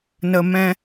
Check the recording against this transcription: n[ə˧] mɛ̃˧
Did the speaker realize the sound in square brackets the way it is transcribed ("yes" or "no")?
yes